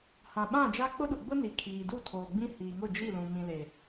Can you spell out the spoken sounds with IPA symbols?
h ã˨ ɓ ã˦˨ d͡ʒ a˦ k͡p ʊ˦ ɗ u˨ ɡ͡b ʊ˦ n i˨ kʰ iː˨ d u˦˨ tʰ oː˨ ɡ͡b ĩ˦ h iː˨ ŋ ʊ˦˨ d͡ʒ i˦˨ l ũ˨ m ĩ˨ l e˨

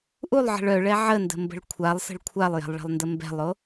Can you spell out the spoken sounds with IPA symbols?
ʔ u lˠ ʕ ə̤ ɭ œ ɭ ɛ ʕ ə n d ə̤ m b ə̤ ɭ kʷʰ a lˠ s ə̤ ɭ kʷʰ a lˠ j ɛ̤ lˠ ɭ ɛ̤ lˠ n d ə m b ɛ̤ lˠ o

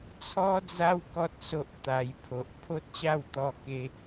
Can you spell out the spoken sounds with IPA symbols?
t͡sʰ ɔ˧ d͡z a˧ w k ɔ˦ t̚ s o˦ ʔ t̪ a˧ j pʰ o˨ ʔ pʰ o˦ t̚ ɕ a˥˧ w t̪ ɔ˧ k e˧

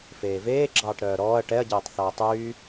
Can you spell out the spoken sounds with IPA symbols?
f eː v eː ɡ͡ǁ ɑː ʈ ɾ œː ɾ ɔː ɐ̯ ʈ ɛ ɐ̯ ɟ eː tˤ θ ɑ ɐ̯ tˤ yː

